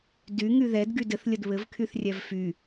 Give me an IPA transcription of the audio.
d y ŋ y ð ɛ d ɡ y d ɘ θ lʲ ə d β ɘ v kʰ y θ rʲ ɛ v f y

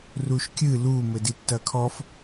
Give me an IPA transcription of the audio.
r u ʃ kʲ ɨ l u m ɘ d i tː ɐ kʰ ɔ f

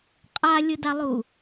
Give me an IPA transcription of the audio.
qʼ a lʲ ʊ d a lˠ u

